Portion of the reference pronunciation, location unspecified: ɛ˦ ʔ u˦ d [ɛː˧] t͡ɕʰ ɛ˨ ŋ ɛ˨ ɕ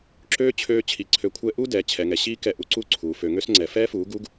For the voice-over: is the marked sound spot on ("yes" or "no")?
no